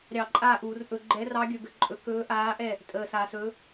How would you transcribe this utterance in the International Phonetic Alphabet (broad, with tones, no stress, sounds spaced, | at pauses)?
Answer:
ɾʲ ɑ˧˩˧ ǃʼ aː˥˩ ʔ uː˧˩˧ r ʔ ɵ˧˩˧ ɡ͡ǃ ɛ˨˥ r ɑ˨˥ ɡʲ ɵ˩˧ ɡ ə˩˧ ǃʼ ɵ˩˧ k ɵː˨˥ ʔ aː˨˥ ʔ ɛ˥˩ | tʼ əː˨˩ s aː˩˧ s ɵː˨˥